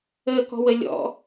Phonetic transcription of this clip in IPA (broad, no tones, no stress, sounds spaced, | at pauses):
əː k ɔ̤ w ə lʲ ɔ̰